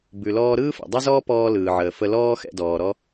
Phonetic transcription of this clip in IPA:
b ʉ˩ l ɔː˧ ɾ ɯː˥ f ɛ̰˩ dˤ ɛ˥ z ɔː˥ p ɔː˧ l ɯː˩ ʕ əː˩ f ə˧ l ɔː˥ x ɛ̰˧ d ɔː˩ ɾ ɔ˥

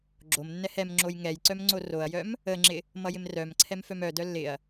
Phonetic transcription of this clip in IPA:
ɡ͡ǁ o m nː ɛ h ɛ m ŋ͡ǁ o j ŋ ɛ j ǀ œ m ŋ͡ǀ o r o ɐ̯ j œ m | ə ŋ͡ǁ ɪ | m ʌ j ɪ m r œ m ǀʰ ɛ m f œ m œ d œ lː ɪ ɐ̯

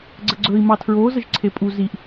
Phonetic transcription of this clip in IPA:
ɡ͡ǀ ə ɡ͡ǀ ɵ i̯ m ɑ tʰ ɹ o z ə ʒ ǀʰ e pʼ u z i ʔ

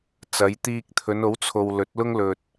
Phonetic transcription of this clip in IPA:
t͡s ɐ˨˧ j t̪ iː˧ k̚ t̪ʰ ɵ˨˧ n o˨˥ w t͡sʰ o˨ w l ɵ˨˥ t̚ l ʊ˥ ŋ l ɵ˨ t̚

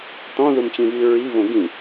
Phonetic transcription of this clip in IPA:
t̪ ɔ̃ ð u m t͡ɕ ĩ v i ɹ i v õ ɡ ĩ

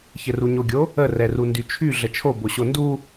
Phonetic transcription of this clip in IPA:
ç ɘ r u ɲ o ɡʲ o | ə r ɛ r u n d y t͡ʃʰ y ɮ ə t͡ʃʰ o b o ɕ o n d u

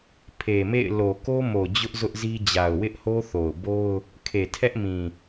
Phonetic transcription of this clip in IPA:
pʰ e˨ m ḛ˦˨ ɪ̯ l o˨ k o˦ m o˨ d͡ʑ ʊ˦ ʔ z ʊ˦ ʔ z i˦ d͡ʑ a˨ ʊ̯ w ɪ˦ ʔ h o˦ θ o˨ ʊ̯ b o˦ ʊ̯ | kʰ e˨ tʰ ɛ˦ ʔ m ĩ˨

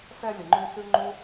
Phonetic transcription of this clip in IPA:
s ɛ˧ lʲ ə˨ ŋ͡ǃ ʉ˧ s ʉ˦ ŋ͡ǃ u˦

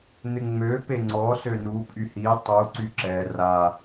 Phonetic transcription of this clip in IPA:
n̪ ɪ ŋ͡m ø p e ŋ͡ǀ ɔ s ø n u pʼ y h i tˤ u ǀ y ǁ ɛ r a

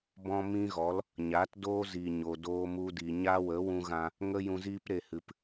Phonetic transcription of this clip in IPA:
b ɔ̃˦ m ĩ˦ ɣ ɔ˨˦ l | ɲ a˨˦ t d oː˦ z i˨ ɲ o˨ d oː˧ m u˧ d i˨ ɲ a˦ w ə˨˦ w ũ˧ ɣ ã˧ | ŋ ə˧ j ũ˨ z iː˧ p ɾ e˨ h ɨ˨ p

